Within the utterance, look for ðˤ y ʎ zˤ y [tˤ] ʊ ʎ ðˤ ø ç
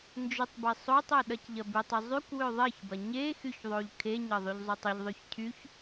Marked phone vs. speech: correct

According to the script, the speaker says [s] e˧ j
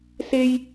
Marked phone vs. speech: correct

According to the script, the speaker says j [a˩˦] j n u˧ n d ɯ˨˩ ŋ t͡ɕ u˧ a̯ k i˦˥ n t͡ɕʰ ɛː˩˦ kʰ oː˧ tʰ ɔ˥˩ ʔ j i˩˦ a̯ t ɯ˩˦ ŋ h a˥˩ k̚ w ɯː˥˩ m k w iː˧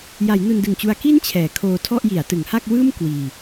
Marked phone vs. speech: correct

